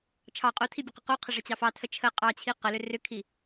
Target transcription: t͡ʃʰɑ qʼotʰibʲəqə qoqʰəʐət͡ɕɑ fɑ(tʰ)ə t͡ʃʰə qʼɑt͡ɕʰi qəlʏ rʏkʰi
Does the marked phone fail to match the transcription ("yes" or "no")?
no